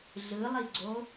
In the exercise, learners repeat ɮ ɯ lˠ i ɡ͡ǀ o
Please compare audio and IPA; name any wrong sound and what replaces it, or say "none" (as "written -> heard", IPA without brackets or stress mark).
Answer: none